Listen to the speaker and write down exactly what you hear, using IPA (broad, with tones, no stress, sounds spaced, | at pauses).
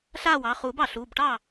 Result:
ɬ aː˥˩ w ɑ˩˧˩ χ uː˨˩˦ b ɑ˩ ɬ uː˩˧˩ b ʈ ɑː˥˩